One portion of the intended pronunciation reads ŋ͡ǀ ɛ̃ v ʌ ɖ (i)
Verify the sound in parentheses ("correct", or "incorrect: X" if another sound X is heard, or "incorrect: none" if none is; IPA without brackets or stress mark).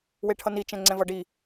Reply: correct